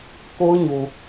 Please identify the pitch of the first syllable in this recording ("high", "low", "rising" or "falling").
high